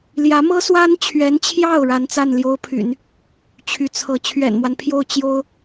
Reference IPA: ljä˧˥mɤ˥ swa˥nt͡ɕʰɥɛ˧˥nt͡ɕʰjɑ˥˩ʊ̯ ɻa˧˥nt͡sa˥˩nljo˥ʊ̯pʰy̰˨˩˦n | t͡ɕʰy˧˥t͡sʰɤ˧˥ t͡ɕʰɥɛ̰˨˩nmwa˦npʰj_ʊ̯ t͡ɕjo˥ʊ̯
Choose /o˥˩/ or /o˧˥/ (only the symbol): o˥˩